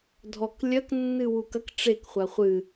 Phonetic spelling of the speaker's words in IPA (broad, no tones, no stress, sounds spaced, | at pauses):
dʱ ɔ k lʲ ɐ k nː ɨ w u k ɐ k ʈ͡ʂ e k χʷ a χʷ ɨ